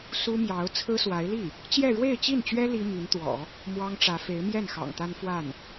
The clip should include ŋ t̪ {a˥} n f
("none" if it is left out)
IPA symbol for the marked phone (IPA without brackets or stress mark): a˥